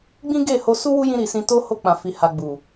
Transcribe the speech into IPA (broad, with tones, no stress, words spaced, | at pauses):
ɡ͡bĩ˦ɡe˦˨ ho˧su˦wu˦jĩ˧ ɾi˨sĩ˧to˦ ho˧k͡pã˨fi˨ ha˨ ɡ͡bu˨